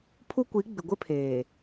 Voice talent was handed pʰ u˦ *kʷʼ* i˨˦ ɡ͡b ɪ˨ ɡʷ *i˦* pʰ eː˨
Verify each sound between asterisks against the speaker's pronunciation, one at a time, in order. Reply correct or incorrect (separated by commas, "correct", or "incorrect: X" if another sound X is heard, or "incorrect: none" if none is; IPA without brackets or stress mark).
incorrect: kʷ, incorrect: ɪ˦